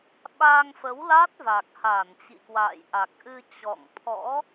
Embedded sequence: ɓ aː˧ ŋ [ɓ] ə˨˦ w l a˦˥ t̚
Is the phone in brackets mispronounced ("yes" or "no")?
yes